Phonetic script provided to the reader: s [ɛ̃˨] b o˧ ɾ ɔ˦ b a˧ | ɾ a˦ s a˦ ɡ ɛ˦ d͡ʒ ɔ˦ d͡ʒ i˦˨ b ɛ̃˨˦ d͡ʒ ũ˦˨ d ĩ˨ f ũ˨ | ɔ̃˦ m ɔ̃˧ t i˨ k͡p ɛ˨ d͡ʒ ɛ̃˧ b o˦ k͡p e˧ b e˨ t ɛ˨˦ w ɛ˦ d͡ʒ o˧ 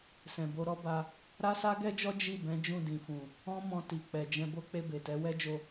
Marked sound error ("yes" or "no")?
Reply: no